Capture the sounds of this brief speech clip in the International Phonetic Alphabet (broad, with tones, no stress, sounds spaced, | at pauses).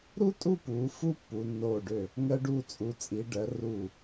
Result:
ɾ u˥ tʼ u˥˧ p uː˩˧ f u˥˧ pː u˩˧ nː oː˧˩ ɖ ø˧˩ | ŋ ɜ˧ ɖ uː˧˩ t͡sʼ u˩˧ t͡sʼ i˩˧ ɖ ɜ˩˧ r uː˧˩